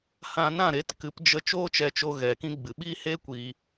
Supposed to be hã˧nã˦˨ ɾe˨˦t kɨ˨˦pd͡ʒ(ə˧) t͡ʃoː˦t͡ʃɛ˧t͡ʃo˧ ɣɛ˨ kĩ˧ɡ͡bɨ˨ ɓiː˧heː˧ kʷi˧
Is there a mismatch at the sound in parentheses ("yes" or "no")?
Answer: no